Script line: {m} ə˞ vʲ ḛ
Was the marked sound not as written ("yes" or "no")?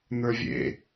yes